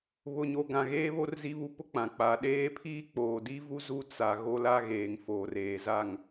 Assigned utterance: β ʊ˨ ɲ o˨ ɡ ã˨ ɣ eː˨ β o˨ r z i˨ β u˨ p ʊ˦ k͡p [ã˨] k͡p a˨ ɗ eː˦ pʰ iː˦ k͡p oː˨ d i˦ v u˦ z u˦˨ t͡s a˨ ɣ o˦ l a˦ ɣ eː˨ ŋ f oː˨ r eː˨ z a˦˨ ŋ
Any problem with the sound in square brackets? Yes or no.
no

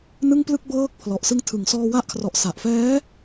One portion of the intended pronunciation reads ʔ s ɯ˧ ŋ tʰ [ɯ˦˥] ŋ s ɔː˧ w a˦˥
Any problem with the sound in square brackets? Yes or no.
yes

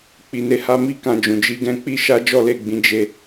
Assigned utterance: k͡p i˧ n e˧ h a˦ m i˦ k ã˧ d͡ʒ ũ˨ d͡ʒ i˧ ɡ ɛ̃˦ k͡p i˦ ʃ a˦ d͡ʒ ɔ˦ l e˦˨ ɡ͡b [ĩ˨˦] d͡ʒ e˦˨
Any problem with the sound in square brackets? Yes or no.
no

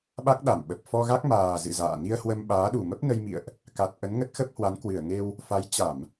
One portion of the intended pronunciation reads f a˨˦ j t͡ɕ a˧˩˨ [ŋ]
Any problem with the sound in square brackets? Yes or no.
yes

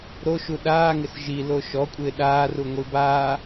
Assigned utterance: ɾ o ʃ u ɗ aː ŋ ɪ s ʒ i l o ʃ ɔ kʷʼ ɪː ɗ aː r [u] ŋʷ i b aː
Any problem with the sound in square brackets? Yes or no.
no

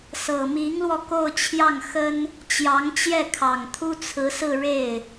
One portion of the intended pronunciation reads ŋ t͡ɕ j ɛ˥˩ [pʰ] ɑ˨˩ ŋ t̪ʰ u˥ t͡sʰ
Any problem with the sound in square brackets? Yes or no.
yes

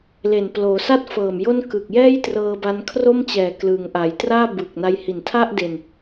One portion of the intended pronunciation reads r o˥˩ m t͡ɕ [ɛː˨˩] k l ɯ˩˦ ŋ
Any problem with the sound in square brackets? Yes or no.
no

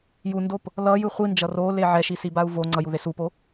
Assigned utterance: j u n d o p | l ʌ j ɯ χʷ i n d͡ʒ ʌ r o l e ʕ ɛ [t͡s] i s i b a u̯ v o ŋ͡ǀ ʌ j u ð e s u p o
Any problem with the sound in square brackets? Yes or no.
yes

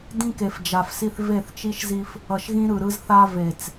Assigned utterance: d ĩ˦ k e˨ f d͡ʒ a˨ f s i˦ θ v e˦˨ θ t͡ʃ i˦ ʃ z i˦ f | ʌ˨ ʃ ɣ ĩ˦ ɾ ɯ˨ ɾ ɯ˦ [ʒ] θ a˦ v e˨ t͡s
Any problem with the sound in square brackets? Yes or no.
yes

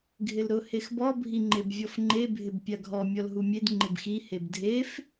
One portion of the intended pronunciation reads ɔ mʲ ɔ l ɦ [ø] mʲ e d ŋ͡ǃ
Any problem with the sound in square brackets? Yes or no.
yes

